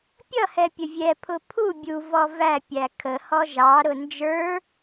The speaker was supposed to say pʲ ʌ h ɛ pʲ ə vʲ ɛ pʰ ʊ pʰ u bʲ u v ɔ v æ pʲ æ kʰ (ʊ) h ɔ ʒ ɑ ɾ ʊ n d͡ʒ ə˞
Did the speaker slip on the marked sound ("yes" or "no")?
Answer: yes